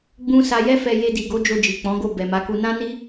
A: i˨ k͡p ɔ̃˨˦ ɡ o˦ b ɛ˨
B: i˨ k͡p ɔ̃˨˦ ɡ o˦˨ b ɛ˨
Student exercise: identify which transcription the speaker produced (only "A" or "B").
B